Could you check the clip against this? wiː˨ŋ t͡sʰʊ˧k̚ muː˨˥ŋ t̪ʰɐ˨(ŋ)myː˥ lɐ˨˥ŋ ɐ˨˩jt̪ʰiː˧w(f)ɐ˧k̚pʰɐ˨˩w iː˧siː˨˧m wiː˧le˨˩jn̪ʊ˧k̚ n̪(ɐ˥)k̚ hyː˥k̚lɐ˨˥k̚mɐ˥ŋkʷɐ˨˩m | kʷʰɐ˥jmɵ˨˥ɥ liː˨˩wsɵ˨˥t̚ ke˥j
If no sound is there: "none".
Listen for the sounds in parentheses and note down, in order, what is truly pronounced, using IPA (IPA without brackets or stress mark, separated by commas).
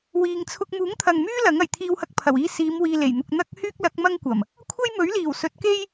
ŋ, h, ɐ˥